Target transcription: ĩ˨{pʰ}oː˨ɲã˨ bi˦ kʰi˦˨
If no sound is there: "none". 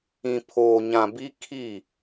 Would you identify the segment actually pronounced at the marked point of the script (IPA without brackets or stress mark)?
pʰ